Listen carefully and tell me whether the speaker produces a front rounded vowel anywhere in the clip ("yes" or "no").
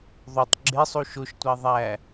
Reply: no